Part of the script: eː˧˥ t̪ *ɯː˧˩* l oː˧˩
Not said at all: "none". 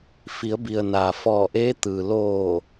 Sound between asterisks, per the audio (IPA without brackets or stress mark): ɯː˩